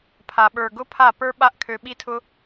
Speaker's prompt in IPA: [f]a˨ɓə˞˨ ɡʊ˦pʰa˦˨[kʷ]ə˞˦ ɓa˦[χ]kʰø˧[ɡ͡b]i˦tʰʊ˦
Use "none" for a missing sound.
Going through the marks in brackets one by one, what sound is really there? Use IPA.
pʰ, p, ʔ, ɓ

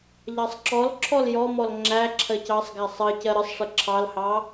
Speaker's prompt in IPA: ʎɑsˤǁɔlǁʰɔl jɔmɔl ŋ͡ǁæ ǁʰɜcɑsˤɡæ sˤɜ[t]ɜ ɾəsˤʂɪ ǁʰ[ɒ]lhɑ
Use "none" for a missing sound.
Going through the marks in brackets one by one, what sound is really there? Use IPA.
c, ɑ

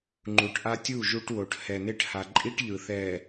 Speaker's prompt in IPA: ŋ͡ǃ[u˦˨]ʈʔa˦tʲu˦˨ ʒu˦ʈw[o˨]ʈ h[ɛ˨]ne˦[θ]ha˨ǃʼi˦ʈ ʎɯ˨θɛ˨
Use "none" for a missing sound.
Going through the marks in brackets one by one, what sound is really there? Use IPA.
u˨, o˨, ɛ˨, ʈ

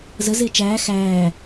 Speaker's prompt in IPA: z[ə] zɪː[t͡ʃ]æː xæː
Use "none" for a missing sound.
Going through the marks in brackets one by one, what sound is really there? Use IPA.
ə, t͡ʃ

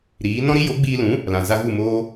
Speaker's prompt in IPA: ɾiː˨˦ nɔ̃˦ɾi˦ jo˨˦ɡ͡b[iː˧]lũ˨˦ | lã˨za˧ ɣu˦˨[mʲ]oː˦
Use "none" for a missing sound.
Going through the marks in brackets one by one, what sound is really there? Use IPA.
iː˧, m

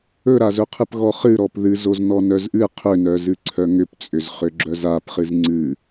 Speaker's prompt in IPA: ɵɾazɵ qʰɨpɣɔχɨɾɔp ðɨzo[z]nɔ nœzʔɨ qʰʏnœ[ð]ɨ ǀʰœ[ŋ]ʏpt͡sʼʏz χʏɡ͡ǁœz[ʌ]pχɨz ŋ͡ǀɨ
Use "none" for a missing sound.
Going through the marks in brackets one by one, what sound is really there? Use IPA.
z, z, ŋ, a

